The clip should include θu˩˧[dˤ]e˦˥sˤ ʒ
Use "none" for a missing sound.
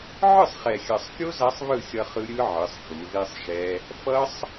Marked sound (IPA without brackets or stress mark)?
ð